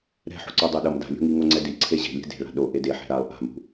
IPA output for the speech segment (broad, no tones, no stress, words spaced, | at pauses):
ɾɛ̤ħo̤ǀo dˤoɗʌm da̤lʲo̤ŋi ŋoŋ͡ǀɛdi ǀʰeʑe̤lʲɛ̤ de̤ɭa̤ ɗo ʔedeħɛ̤ ɾalˠ ʔa̤mṳ